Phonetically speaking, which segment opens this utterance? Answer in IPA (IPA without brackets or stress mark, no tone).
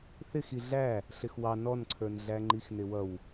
θ